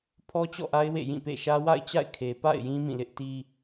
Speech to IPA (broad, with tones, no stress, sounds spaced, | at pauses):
pʰ ɔ˦ t͡ɕ ɔ̰˦˨ ʔ a˦ ɪ̯ w ḛ˦˨ j ĩ˦˨ p ḛ˦˨ ʃ ä˦ w a̰˦˨ ɪ̯ t͡ɕ a̰˦˨ ɪ̯ kʰ e˨ p a̰˦˨ ɪ̯ j ĩ˦ m ĩ˦˨ l ɪ˦ ʔ t i˦